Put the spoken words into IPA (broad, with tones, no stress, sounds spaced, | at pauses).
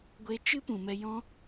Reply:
ɡʷ e˧ t͡ʃ ɨ˦ p ũ˨ m ɛ˧ j ɔ̃˦